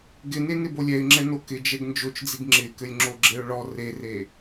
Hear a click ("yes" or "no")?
yes